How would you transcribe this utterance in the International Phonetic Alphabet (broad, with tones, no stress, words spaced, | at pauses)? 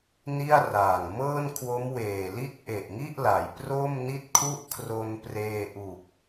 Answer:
ni˥˩a̯raː˨˩ŋ mɤː˥˩nkʰwo˦˥mweː˨˩li˥˩t̚ ʔe˨˩ʔŋi˥˩ʔla˩˦j pro˥˩mni˥˩t̚kʰu˥˩ʔkʰro˧n preː˧ʔu˨˩k̚